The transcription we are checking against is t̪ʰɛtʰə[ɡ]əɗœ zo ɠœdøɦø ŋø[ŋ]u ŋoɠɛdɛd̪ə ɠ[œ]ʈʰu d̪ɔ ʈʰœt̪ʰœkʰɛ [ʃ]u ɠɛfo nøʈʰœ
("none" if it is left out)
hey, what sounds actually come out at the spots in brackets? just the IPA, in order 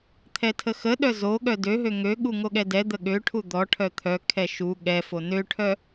x, ɠ, ø, ʃ

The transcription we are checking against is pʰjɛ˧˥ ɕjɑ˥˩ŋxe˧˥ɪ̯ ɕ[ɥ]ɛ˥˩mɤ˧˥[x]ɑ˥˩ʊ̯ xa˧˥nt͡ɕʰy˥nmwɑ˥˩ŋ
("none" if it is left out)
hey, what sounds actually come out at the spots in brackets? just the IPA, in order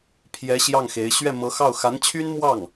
ɥ, x

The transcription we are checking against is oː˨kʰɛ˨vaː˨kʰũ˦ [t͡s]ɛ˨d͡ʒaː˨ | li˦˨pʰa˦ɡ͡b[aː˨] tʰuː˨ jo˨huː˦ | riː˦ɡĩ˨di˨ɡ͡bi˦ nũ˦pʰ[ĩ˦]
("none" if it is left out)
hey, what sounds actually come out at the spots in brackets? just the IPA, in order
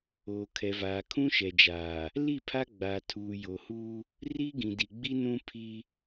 ʃ, aː˨, i˦

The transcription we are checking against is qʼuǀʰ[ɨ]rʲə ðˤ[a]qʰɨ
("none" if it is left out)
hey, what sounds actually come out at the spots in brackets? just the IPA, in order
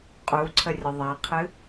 ə, a

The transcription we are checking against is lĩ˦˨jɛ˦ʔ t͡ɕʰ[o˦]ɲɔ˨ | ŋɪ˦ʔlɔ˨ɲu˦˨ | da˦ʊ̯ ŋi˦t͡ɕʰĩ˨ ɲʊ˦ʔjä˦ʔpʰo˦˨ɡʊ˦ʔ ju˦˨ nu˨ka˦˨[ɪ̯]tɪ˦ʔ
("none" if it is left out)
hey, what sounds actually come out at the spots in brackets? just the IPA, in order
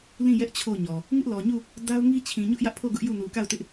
o˦˨, ʊ̯

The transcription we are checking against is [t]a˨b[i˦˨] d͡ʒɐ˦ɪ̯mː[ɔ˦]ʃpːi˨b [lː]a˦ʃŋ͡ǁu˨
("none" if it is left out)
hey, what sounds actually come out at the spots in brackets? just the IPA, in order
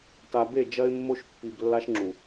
t, e˦˨, o˦, lː

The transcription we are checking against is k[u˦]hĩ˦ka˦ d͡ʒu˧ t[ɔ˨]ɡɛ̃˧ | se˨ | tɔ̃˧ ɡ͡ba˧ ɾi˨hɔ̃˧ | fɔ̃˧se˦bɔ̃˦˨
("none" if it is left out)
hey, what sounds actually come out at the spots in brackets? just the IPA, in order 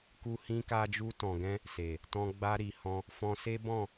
u˦, ɔ̃˨

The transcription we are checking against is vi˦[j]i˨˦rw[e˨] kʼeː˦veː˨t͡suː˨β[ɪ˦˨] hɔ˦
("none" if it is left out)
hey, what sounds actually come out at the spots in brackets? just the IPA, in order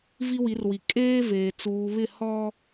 w, i˨, ɪ˦˨

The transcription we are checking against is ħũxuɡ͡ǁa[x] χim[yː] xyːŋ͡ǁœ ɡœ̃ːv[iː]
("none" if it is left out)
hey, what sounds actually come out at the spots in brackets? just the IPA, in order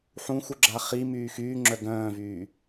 none, yː, yː

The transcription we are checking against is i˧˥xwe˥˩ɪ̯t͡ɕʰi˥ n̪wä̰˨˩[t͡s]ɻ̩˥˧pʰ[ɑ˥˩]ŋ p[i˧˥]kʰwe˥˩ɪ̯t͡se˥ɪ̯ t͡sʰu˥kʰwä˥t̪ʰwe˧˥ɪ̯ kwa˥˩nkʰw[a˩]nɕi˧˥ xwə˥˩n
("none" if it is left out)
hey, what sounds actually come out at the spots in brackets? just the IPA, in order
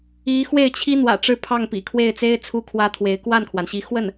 ʈ͡ʂ, ɑ˥˩, ḭ˨˩, a˩

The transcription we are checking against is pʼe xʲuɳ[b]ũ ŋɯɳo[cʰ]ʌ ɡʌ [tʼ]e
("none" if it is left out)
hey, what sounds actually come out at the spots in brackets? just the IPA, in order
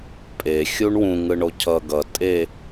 w, cʰ, tʼ

